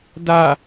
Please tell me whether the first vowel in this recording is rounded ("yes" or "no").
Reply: no